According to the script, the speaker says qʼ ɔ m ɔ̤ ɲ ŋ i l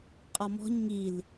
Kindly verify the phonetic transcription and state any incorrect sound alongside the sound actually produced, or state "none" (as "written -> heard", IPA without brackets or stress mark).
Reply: none